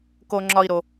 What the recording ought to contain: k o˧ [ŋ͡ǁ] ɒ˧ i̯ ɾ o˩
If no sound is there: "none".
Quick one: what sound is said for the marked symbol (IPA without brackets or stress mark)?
ŋ͡ǁ